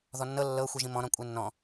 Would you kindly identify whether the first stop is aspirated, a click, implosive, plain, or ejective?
ejective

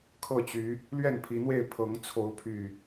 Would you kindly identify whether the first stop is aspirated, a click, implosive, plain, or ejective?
aspirated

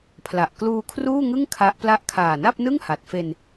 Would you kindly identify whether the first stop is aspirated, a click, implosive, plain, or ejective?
aspirated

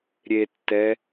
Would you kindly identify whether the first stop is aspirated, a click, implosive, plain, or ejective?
plain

